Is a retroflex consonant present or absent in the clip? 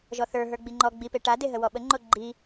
present